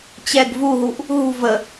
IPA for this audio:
t͡ɕ ɛ ɡ v u ɦ u ʔ | ɦ ṳ v ə

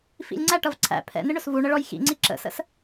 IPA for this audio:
f ḭ lʲ ŋ͡ǀ æ ʈ ʌ v ǀʰ æ̰ pʰ ɛ̰ n ɪ ɳ ʊ s v u ɳ ə ɭ ɔ j x ḭ ŋ͡ǀ i ǁ ə̰ s ə̰ s

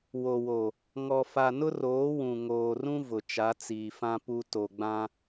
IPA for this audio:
w o˨ w o˨ | ŋ ɔ˨ f a˨ n ʊ˦ r oː˨˦ w ũ˨ ŋ oː˨ r ũ˦ v ʊ˨ t͡ʃ a˨˦ t͡s iː˨ f ã˦ p u˨ t o˨ ɡ͡b ã˦

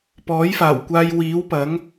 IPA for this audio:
p ɔː˨˥ j f aː˨˩ w kʷ aː˧ j w iː˨˥ w p ɐ˨˥ ŋ

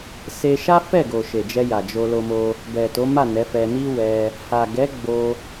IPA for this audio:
s e˧ ʃ a˦ f ɛ˦˨ ɡ o˨ ʃ e˨ d͡ʒ ɛ˧ j a˨ d͡ʒ o˧ l o˧ m o˧ | b ɛ˨ t o˨˦ m a˦˨ n ɛ˨˦ f ɛ˧ n i˦ w ɛ˧ | h a˨ ɡ ɛ˨˦ ɡ͡b o˧

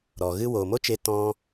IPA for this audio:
ɾ ɔ˨ ɣ ɨ˦ w oː˨ m o˦ t͡ʃ e˧ t ɔ̃˦

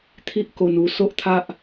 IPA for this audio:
t̪ʰ i˦ ʔ k o˧ n u˧ s o˦ ʔ t̪ʰ a˦ ʔ

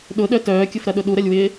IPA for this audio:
ɗ ʊ ɗ œ t œː kʲ ʊ f ɾ ɐ ɗ ʊ ɗ u ɾ ɐ lʲ w ɪː

